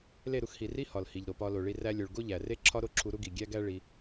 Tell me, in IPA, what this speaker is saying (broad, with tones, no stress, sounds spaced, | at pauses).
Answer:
l e˦˨ ɾ u˧ x h i˨ r i˦ h ɒ˨ l h i˨ ʎ ɾ o˨ p ɒ˧ l o˨ ɭ i˧ r æ˧ lʲ o˨ ɭ ɡ o˦ ʎ æ˨ r e˦ ǁʰ ɒ˦ ɾ o˦ ǁʰ u˧ ɾ u˦ ɡ i˨ ɡʲ æ˦ ɡ æ˦ ɭ i˧